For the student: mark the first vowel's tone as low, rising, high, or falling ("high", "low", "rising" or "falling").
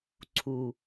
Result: low